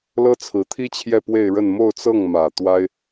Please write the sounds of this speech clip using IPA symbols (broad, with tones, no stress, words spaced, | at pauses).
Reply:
lɤ˥t͡sʰɹ̩˧˥t̪ʰi˥t͡ɕʰjɛ˥˧ pwe˥˧ɪ̯ɻə˥˧n mo˥˧ʊ̯t͡sɤ˥˩ŋmä˨˩ t̪wa˥ɪ̯